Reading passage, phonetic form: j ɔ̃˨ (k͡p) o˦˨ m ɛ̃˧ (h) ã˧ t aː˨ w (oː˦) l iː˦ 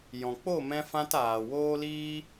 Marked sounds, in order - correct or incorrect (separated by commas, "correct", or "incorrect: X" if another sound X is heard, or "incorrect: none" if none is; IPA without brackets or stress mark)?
correct, incorrect: f, correct